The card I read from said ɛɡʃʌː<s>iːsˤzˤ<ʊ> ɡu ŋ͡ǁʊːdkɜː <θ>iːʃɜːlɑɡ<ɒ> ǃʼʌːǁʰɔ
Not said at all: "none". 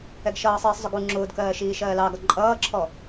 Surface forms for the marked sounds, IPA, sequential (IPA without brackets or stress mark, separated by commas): sˤ, ʊ, ʃ, ɒ